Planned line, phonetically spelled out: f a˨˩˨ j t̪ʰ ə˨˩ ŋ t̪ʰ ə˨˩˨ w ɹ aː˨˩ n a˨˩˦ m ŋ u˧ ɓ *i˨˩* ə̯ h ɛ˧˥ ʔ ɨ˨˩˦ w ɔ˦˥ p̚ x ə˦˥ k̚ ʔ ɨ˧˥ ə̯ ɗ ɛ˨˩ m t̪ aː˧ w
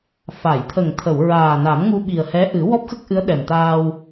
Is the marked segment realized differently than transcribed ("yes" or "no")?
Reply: no